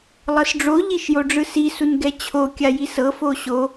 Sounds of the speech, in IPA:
lˠɤsɖ͡ʐo ʎiʃjoɖ͡ʐɯsi sunɡɛt͡ɕʰo kʲajisɤ foɕo

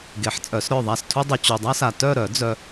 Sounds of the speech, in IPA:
ɡe˨˩˦ħt͡sʼœ˨˩˦sɾœ˦˨ðˤa˦˨s tʰu˦dˤu˨ t͡ɕu˨dˤa˦sa˨ tœ˦˨ɾœ˨˩˦ d͡zœ˦

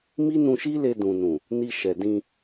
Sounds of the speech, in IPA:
mi˦nũ˧ʃi˦le˧ dũ˨nũ˨ | ni˧ʃɛ˨ dĩ˧

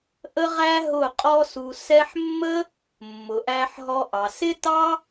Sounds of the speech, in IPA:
ʔə˦ʁæ˦ ɦʊ˦˨qʼɔ˦su˧ sɛ˧ħmːə˦ | mːʊ˨ʔæ˧ħɦɔ˧ʔɑ˨ sɪ˦ tɑ˦

